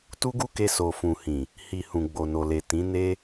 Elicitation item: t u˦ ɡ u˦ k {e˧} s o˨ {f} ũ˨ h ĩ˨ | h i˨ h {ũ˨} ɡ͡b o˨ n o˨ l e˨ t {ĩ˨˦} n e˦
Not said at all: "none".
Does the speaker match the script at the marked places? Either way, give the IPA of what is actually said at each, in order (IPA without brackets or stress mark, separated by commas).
e˧, f, ũ˨, ĩ˨˦